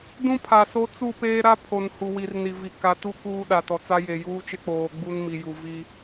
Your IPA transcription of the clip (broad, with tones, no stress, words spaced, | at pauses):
dũ˦pʰa˨so˦ t͡su˦˨peː˦ɾa˦ pʰo˨n hu˨wi˨rni˨vi˨ ka˨tu˦ kuː˦ɗa˨tɔ˨t͡sa˦ je˨juː˦t͡ʃɪ˦k͡poː˨ ɡ͡bu˦nmi˨ju˨ vi˦